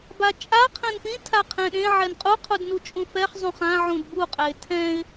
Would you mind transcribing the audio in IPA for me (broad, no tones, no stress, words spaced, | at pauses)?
bat͡ʃʼa qʰɛ̃npĩ tʰaqʰɛ̃ɗẽ ʕɛnqʼu qʰudnut͡ʃʼũfɛχ zˤũχã ʕũdbu qʼɛɪ̯tʰɛ̃ɪ̯